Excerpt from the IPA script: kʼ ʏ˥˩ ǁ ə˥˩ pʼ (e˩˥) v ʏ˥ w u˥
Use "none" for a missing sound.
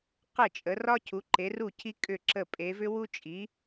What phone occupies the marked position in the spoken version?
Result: e˩˥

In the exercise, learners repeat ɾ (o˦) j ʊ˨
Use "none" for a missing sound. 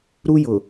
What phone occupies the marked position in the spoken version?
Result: u˦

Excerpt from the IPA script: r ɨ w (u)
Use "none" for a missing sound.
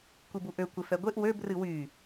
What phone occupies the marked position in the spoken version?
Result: y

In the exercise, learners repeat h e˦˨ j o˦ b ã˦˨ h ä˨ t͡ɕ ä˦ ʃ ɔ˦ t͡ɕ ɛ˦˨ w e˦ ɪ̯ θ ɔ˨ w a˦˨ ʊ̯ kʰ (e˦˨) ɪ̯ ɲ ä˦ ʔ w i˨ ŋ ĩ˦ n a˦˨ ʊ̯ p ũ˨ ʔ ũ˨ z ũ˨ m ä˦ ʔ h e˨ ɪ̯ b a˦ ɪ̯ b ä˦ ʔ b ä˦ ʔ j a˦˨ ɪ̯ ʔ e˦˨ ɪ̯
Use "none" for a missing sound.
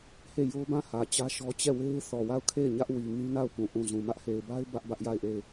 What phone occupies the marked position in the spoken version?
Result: e˦˨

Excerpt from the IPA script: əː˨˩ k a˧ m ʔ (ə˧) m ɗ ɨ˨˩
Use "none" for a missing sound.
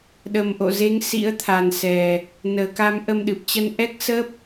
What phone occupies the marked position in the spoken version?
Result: ə˧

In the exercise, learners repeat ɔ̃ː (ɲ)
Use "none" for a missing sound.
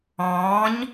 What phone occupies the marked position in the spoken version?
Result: ɲ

